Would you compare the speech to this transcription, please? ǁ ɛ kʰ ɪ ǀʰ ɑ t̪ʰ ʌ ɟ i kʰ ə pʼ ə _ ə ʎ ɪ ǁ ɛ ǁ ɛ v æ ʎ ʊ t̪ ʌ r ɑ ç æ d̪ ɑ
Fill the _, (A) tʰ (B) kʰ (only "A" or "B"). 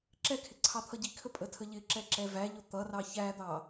A